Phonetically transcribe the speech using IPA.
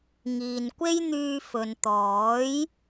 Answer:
ŋ iː˨ n kʷ e˥ j n̪ yː˧ f ɵ˨ n t̪ ɔː˨˥ j

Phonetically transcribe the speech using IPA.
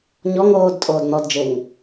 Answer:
ɲ ɔ ŋ oː d tʼ oː d n̪ ɔ d d͡ʒ e ŋ

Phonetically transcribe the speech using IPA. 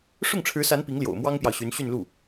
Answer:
ʂ ʊ˥˩ ŋ ʈ͡ʂʰ ɻ̩˧˥ s a˧˥ n p i˧˥ ŋ l j o̰˨˩ ʊ̯ m w ɑ˥ ŋ p j ɑ˨ ʊ̯ ɕ y˧˥ n ɕ y˥˧ n l u˥˩

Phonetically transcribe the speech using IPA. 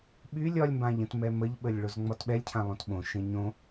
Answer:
ɓ y lʲ ɒ lʲ m b ã ʎ ə̃ t m ɛ m ə ʎ ɓ ə lʲ ɭ o z ŋ͡m ɒ t ɓ ɛ lʲ cʰ ã lˠ õ t ɓ õ ʃ ẽ ɲ õ

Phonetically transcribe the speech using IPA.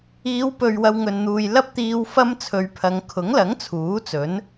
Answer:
iː˨˧ w p ɵ˨ ɥ w ɐ˧ w ŋ ɵ˨ n n̪ uː˨ j l ɐ˥ p̚ t̪ iː˧ w f ɐ˥ m t͡sʰ ɵ˨˧ ɥ pʰ ɐ˨˧ ŋ kʰ ʊ˨˥ ŋ l ɐ˨˥ ŋ t͡sʰ uː˨˥ t͡s ɵ˨˥ n

